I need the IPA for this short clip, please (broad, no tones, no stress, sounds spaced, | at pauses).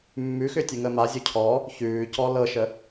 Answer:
mː ʉ x ʏ tʲ ə ŋ ə m a zʲ o cʰ ɔ | ç ʉː c ɔ l ɤ ʃ ə